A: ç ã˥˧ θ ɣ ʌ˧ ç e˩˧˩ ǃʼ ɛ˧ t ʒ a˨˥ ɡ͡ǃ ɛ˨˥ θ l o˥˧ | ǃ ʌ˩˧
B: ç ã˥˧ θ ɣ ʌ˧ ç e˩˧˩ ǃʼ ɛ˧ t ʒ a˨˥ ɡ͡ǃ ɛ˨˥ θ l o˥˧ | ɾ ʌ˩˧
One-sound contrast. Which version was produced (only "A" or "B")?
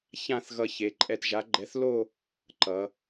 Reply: A